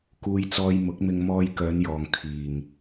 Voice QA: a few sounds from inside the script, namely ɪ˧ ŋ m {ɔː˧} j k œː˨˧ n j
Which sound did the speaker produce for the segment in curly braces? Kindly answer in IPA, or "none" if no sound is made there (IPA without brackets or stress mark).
ɔː˧